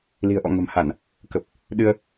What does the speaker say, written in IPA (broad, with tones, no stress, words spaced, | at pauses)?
li̤˨˩ə̯ʔɔ̰˧˨ ŋə̤˨˩mha˧˩˨n | kə˨˩p̚ | ɗɨ˧ə̯